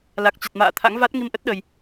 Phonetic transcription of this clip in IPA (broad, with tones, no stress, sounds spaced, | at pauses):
l a˨˩ k̚ t͡ɕ a˨˩ t̚ m a̰ː˧˨ t̪ʰ a̰˧˥ ŋ v a˦˥ t̚ ŋ i˧ m ʔ ə˦˥ t̚ ɗ ə˨˩ j